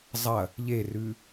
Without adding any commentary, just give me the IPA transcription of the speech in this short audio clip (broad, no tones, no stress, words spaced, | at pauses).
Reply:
zˤɐ | ʎerʉ